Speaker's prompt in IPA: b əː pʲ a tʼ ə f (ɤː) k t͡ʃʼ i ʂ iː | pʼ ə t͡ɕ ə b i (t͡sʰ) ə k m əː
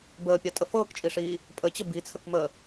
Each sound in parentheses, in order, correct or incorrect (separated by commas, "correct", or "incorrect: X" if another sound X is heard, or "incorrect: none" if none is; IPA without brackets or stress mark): correct, correct